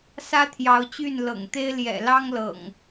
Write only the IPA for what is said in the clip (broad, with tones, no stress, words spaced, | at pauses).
sä˦t̪ʰjɑ˨˦ʊ̯t͡ɕy˥˨n lɤ̰˨˩ŋt̪e˦ɪ̯ ljɛ̰˨˩lɑ˦ŋlɤ̰˨˩ŋ